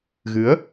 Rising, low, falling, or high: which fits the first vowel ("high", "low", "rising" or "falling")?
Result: rising